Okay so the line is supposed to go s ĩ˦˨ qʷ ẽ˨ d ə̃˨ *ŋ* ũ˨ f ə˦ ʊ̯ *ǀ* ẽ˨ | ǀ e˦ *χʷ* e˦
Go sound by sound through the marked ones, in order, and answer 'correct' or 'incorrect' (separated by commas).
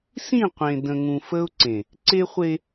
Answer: correct, correct, correct